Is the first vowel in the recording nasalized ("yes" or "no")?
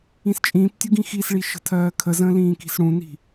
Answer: yes